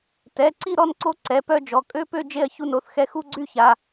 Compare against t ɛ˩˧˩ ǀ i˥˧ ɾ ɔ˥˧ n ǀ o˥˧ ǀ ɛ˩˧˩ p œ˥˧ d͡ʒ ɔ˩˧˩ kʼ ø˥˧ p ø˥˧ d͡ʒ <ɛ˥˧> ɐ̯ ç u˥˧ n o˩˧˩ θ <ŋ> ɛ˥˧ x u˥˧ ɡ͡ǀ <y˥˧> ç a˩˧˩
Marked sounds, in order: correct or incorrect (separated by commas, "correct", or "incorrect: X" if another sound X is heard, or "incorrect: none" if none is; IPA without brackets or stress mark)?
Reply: incorrect: e˥˧, incorrect: x, correct